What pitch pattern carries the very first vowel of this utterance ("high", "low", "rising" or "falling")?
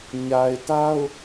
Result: low